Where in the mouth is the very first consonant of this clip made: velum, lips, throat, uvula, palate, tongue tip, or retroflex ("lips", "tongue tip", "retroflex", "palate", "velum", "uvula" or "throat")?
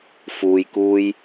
lips